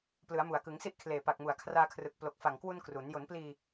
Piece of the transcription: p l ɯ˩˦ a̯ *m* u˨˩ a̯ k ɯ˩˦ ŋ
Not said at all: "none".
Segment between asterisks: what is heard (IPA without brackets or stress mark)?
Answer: m